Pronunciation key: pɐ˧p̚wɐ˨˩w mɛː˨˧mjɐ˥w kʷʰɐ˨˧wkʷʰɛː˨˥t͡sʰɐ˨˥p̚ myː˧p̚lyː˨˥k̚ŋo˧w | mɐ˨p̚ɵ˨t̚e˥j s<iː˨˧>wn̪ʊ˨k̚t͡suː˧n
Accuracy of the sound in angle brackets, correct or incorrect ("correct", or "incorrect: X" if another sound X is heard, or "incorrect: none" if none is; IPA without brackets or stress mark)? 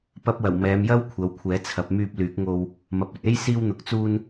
incorrect: iː˧